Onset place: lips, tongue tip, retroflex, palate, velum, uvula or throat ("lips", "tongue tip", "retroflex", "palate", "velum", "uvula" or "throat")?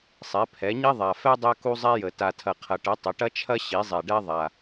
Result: tongue tip